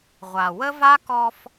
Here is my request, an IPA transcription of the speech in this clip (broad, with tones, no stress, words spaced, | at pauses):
ʁʷa˨ wə˦va˦kɔ˧f